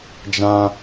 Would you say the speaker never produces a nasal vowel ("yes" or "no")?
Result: no